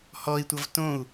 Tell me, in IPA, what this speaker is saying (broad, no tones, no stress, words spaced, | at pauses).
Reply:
hɔi̯tʷʌv tõu̯